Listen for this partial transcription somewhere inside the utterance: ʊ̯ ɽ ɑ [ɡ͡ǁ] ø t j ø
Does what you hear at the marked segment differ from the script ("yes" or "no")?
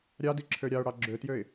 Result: no